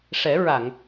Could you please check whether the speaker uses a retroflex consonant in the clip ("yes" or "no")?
yes